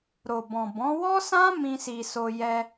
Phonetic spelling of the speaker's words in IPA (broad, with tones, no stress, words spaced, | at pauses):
ɾo˨bɔ̃˨ bɔ̃˨˦ wɔ˦sã˦ mĩ˦si˧ so˧ jɛ˧